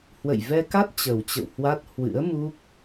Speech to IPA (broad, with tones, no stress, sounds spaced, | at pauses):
h w ə̰˧˨ j v ɛ˧ k a˦˥ t̚ t͡ɕ ə˨˩ w t͡ɕ ə̰˧˨ w h w a˦˥ t̚ h w ɨ̰˧˥ ə̯ m u˦˥ k̚